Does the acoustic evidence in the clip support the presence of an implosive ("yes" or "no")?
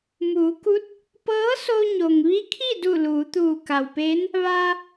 no